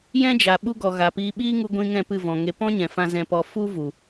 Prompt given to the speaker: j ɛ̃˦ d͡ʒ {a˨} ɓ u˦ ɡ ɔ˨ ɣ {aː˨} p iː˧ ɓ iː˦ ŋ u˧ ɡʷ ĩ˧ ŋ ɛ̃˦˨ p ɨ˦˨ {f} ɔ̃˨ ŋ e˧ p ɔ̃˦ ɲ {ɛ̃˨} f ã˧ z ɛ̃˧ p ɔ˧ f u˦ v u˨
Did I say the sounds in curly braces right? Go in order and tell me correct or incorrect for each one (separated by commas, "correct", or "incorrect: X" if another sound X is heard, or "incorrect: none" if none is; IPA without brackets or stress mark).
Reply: correct, incorrect: a˨, incorrect: v, correct